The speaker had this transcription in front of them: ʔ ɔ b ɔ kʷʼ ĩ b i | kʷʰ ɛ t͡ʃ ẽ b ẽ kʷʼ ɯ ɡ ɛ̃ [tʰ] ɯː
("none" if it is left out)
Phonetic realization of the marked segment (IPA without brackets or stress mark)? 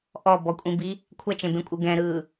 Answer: ɾ